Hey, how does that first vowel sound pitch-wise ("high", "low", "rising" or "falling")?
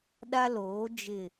high